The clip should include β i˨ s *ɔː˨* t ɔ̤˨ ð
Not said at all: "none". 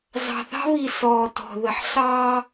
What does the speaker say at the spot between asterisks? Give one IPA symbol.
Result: ɔː˨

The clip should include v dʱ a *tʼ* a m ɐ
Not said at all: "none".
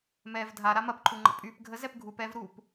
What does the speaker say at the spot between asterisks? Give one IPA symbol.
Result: ɾ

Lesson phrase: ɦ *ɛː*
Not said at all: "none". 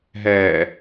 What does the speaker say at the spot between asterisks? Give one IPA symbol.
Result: ɛː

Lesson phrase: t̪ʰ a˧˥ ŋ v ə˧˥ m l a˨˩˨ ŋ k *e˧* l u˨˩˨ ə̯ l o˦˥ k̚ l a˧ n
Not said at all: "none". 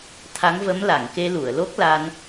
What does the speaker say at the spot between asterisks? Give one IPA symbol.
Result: e˧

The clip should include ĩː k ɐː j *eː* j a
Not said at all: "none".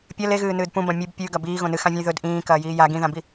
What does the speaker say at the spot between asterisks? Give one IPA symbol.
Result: iː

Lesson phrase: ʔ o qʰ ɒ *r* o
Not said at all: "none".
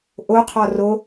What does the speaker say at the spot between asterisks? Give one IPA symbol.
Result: r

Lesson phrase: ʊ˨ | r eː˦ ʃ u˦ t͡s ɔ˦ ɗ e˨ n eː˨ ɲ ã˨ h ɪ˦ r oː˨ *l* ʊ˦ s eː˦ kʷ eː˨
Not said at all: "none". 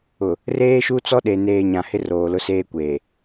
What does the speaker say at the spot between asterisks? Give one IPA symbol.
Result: l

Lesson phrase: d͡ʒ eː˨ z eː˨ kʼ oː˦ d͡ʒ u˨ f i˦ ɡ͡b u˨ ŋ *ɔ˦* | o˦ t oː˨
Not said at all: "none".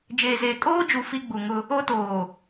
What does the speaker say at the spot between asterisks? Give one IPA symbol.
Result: ʊ˦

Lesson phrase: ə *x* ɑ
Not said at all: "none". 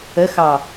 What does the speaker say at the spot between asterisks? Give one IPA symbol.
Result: x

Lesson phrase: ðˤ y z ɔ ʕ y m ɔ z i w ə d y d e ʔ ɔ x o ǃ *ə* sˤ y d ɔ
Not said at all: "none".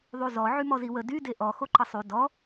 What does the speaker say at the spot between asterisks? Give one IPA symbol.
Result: ə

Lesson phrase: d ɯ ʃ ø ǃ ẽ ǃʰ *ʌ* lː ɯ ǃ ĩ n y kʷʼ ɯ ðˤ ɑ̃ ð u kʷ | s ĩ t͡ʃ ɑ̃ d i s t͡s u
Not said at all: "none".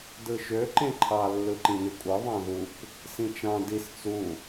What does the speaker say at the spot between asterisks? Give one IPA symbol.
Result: ɑ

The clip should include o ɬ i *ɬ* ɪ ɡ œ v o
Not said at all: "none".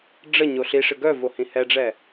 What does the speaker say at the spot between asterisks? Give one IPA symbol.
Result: ʂ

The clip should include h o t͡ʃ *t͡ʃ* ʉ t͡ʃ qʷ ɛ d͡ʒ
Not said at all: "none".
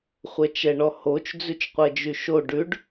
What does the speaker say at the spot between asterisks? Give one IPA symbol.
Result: d͡z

